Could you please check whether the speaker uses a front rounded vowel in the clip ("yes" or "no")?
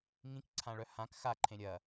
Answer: yes